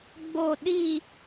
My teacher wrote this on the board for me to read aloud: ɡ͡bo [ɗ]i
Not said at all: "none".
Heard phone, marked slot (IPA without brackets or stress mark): ɗ